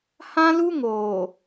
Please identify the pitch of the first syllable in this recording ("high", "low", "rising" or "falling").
high